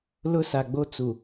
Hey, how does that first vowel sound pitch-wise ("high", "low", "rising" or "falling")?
high